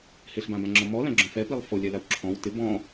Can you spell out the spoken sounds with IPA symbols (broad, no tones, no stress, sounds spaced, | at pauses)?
h ɪ ɬ b ã b ã ŋ͡ǁ ɔ m ɔ l ã ɡ͡ǁ õ f ɛ p i lˠ f o lʲ ɛ l a w ǁʰ ɔ̃ w t ɪ b ɔ̃